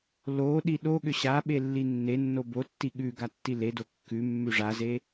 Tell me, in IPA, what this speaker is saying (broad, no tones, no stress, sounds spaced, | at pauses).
l o ɗ i ɗ o ɠ ʏ ɕ a ɓ e lː i nː e nː o b o tː i ɠ ʉ ɡ a tː i l e d o kː ʉ mː ʉ ʐ a z e